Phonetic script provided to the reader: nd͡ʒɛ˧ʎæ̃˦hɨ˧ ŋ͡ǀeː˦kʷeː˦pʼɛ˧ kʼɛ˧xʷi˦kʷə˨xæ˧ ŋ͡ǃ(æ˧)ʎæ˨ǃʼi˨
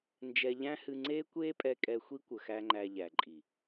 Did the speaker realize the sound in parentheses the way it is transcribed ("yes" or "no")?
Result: yes